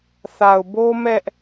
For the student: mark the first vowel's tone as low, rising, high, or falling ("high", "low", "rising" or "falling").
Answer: low